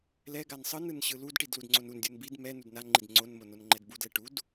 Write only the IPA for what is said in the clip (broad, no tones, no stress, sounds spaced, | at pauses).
l ɛ ɡ a n sˤ ɯ n ɯ n ɕ ɯ l u d ʈ i d l u d ŋ͡ǀ o n u n dʲ u n b i d m ɛ n u d n a ŋ͡ǃ i d ŋ͡ǀ o n m o n o n ŋ͡ǃ ɛ d b u d l ɛ ʈ u d